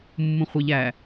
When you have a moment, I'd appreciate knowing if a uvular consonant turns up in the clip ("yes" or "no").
yes